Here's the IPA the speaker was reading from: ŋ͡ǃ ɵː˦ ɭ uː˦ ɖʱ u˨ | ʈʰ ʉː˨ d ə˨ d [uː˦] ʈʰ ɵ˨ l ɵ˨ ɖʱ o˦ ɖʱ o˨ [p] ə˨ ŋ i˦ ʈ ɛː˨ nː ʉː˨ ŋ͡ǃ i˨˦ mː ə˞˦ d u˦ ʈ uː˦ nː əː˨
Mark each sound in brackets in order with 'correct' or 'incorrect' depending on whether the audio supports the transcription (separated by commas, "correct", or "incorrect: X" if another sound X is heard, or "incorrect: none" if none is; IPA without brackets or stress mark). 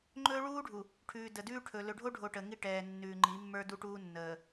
incorrect: ʉː˦, incorrect: ʈ